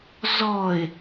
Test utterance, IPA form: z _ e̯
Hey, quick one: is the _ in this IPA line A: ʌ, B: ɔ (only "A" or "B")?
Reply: B